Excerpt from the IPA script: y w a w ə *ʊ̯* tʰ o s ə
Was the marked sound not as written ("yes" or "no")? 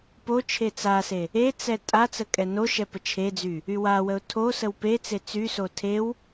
no